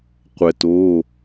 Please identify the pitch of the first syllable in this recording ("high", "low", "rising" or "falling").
low